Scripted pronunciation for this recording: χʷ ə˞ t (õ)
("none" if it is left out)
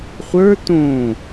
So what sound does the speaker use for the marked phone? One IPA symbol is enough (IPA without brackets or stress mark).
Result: õ